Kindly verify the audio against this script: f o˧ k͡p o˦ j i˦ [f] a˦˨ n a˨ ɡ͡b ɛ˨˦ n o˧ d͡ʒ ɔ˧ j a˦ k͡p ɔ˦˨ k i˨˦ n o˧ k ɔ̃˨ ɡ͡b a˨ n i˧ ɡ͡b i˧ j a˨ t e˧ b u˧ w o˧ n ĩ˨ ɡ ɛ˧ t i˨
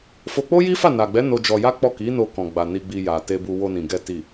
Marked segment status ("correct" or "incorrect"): correct